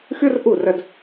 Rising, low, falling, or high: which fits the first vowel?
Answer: high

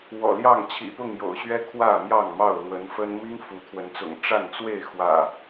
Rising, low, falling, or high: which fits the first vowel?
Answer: low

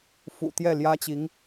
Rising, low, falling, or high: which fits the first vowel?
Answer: low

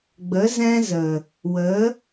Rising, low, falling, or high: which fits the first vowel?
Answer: rising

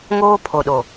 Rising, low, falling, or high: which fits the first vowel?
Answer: high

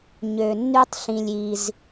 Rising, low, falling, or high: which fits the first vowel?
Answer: low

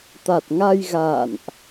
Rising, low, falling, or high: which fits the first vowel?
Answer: low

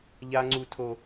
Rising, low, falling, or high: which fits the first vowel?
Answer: high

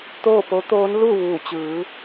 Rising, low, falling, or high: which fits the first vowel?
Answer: falling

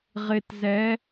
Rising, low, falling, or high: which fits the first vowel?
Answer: low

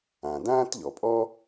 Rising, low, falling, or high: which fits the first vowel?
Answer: low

